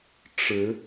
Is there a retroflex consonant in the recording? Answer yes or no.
yes